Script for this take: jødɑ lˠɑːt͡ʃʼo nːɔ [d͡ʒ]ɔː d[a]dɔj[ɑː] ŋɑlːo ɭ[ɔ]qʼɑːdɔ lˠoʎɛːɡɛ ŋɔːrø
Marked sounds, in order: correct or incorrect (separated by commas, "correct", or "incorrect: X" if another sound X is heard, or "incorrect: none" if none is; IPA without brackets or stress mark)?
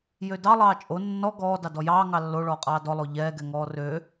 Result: incorrect: ɡ, incorrect: ɑ, correct, incorrect: ɔː